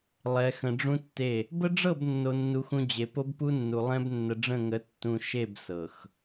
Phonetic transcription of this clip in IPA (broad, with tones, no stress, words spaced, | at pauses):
lˠɛ˨xə̃˨ɖ͡ʐũ˦tːe˦˨ | bə˦ɖ͡ʐɤ˦˨b nːo˨nːu˨xũ˨ d͡ʑe˨ po˦bpu˦nːu˨ lˠɛ̃˦b nːə˨ɖ͡ʐə̃˦˨ŋə˨˦ tːũ˨ ʃe˦˨b sɤ˨x